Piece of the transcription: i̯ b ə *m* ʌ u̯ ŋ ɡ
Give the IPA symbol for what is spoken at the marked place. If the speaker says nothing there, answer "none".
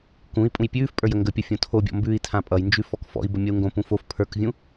mʲ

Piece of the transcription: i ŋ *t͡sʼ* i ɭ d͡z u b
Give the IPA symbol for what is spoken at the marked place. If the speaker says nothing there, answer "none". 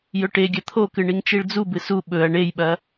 t͡ʃ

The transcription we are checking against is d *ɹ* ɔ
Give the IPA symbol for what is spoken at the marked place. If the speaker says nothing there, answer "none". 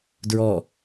ɹ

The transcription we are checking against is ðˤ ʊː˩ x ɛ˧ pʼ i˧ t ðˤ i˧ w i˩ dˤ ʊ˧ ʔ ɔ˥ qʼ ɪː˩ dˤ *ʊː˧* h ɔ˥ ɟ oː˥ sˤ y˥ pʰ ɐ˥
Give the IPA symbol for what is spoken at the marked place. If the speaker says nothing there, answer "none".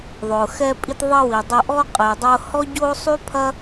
ʊː˧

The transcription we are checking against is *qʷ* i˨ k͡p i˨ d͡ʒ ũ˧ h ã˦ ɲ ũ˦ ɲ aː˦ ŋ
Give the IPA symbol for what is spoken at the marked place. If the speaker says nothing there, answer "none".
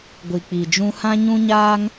ɡʷ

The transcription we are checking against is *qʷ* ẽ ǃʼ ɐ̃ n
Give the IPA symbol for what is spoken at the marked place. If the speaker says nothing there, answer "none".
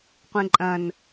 qʷ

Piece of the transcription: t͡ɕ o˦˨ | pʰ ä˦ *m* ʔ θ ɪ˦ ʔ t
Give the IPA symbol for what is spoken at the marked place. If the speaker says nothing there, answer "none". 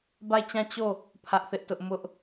none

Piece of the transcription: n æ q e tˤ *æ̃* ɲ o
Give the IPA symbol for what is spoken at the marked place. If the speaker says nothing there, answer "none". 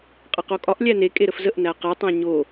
æ̃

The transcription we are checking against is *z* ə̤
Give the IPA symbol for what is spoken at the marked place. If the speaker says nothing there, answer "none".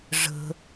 ʐ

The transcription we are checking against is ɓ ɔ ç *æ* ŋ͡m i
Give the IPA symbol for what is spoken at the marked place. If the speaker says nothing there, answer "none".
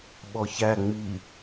æ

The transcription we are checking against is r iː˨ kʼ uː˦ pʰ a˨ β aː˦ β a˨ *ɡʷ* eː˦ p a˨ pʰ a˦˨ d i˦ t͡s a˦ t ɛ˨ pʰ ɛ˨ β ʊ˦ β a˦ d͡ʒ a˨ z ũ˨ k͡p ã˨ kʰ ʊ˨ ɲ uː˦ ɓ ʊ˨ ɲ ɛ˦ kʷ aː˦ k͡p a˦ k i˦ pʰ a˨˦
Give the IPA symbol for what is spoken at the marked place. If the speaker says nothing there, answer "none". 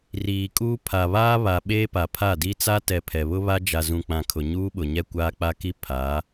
ɓ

